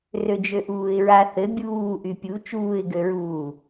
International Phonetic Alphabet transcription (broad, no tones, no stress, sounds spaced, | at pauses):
r ø d͡ʒ ø ʔ uː ɪ̯ ɹ a θ ɘ bʲ uː ʔ y pʲ u t͡ʃ uː ɪ̯ ɡ ø ɹ uː